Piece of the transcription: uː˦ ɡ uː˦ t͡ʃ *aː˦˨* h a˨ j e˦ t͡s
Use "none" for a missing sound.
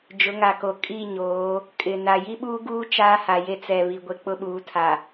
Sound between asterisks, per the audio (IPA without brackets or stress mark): aː˦